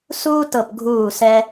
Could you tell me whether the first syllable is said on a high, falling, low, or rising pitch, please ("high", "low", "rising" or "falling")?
high